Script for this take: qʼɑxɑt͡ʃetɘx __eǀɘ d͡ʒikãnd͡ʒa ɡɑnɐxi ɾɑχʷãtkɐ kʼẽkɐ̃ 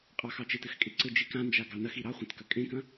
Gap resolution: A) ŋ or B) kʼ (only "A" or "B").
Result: B